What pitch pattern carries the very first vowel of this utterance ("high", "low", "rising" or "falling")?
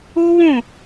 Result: high